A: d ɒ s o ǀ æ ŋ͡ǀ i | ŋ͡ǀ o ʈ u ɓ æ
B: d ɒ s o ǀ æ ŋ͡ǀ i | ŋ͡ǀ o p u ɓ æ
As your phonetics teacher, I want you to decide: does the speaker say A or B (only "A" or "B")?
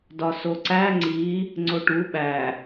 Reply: A